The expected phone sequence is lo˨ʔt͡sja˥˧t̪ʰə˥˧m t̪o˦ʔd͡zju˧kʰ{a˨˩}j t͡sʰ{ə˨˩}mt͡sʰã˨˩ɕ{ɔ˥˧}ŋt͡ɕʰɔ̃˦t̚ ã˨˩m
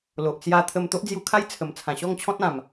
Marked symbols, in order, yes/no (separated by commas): no, yes, yes